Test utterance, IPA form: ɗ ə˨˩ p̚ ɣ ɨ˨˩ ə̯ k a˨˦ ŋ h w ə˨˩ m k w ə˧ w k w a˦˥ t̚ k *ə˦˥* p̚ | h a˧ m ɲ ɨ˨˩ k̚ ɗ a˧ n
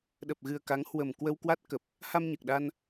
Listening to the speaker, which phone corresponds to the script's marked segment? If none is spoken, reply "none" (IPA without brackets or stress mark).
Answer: ə˨˩